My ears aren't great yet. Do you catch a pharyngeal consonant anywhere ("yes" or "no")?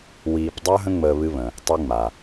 no